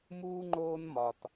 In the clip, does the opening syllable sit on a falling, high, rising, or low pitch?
high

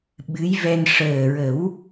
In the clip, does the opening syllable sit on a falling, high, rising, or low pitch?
rising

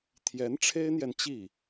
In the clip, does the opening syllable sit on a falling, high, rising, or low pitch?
rising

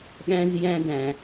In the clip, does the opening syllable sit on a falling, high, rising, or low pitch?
high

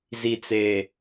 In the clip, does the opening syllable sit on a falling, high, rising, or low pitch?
low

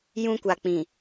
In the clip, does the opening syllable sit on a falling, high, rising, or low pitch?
high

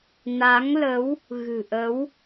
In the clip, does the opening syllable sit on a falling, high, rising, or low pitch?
rising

